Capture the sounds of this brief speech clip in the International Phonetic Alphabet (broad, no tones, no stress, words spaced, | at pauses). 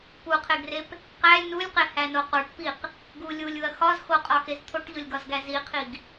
puqʰeɡrep | qælʲ nulʲqehæno qoʈpiq | ɡu lʲulʲuɐ̯ xɒz xoqʼɒxez t̪ʰoʈʎolʲɡɒzɡæ ziqʰiɡ